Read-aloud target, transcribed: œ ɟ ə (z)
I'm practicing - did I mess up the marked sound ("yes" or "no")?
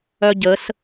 yes